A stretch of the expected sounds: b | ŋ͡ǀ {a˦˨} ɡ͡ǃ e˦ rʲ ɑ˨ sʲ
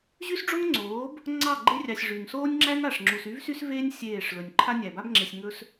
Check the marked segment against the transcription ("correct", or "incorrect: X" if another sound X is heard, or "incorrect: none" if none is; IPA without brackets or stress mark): incorrect: ɑ˦˨